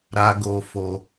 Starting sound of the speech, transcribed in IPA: ɾ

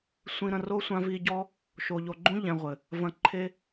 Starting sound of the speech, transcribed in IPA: sʷ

